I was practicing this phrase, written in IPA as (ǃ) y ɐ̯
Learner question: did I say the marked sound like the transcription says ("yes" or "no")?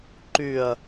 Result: yes